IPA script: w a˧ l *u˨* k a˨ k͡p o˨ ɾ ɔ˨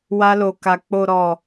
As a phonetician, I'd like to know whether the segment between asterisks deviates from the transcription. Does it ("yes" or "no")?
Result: yes